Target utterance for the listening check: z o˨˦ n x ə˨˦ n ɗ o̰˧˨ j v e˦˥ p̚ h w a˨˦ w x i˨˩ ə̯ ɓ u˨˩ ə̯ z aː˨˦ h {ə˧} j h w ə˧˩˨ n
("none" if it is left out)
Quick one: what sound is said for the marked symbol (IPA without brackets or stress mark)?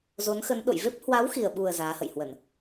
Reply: ə̰˧˨